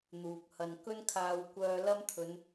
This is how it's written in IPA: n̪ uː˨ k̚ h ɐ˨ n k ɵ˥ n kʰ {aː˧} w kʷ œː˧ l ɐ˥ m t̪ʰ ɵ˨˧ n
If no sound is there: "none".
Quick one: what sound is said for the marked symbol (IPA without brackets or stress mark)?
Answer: aː˧